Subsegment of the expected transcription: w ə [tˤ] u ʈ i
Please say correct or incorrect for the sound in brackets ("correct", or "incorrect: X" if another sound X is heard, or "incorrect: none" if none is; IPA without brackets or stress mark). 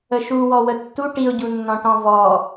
incorrect: tː